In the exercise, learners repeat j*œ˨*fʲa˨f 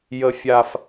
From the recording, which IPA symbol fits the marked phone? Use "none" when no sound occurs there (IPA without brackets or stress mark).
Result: ə˨